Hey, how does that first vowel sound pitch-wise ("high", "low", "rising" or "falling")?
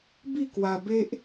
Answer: falling